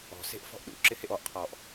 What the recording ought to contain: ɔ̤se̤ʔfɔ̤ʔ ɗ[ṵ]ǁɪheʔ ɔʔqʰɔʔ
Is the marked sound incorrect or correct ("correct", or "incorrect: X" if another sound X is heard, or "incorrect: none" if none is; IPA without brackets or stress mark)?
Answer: correct